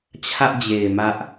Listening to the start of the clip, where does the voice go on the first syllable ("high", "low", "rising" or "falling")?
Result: high